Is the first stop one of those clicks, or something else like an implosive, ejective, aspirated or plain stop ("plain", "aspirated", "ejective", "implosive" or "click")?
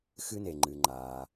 click